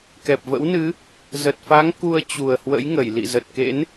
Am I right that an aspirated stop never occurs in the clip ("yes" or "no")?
yes